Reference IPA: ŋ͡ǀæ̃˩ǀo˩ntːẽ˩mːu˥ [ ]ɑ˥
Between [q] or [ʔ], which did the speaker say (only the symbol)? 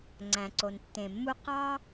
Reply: q